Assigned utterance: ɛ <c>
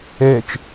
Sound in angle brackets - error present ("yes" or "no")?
yes